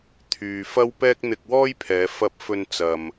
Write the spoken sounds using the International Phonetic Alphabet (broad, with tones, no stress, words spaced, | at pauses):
t̪ʰyː˨ fɐ˥wpɛː˥k̚ n̪ɪ˧k̚wɔː˥jpʰɛː˨˧ fɐ˧p̚ fɵ˧n t͡sɐ˨m